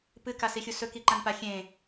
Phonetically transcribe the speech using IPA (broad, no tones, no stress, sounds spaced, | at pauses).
p ɨ k a s i xʲ u s ɵ k i ǃ ã n p a xʲ ẽ